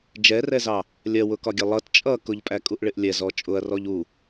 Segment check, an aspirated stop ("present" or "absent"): absent